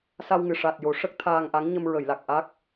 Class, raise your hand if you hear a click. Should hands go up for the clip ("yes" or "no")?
no